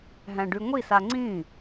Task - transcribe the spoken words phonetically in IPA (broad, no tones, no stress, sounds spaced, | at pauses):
ɦ æ̃ ɖ y ŋʷ i s a ŋ͡ǀ ĩ